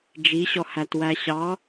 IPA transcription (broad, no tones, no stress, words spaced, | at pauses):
d͡ʒiɕɔhætwæ ɕɑ